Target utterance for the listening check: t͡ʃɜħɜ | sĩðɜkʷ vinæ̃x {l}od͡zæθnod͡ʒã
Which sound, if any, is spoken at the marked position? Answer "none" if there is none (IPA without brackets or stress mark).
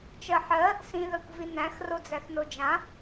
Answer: r